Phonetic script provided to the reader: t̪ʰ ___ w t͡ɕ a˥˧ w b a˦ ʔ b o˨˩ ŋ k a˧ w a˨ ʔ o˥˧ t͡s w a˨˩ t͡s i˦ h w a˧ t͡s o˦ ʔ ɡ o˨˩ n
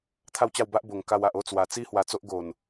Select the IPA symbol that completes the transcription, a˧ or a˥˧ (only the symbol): a˥˧